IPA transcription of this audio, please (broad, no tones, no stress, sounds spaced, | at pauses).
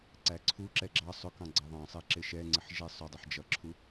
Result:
ǀ æ ǀʰ u ǁ ɛ ɡ͡ǁ ɑ sˤ ʊ k ɑ̃ ɡ͡ǀ ɑ ðˤ ɑ̃ sˤ ɛ ǁ ɪ ʃ ɛ ŋ͡ǀ ɪ ħ ʒ ɛ sˤ ʊ dˤ ɪ ħ d͡ʒ ʌ ǁʰ u